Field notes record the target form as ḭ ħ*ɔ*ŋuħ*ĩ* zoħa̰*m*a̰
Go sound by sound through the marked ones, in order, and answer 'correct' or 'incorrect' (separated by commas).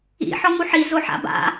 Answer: correct, incorrect, incorrect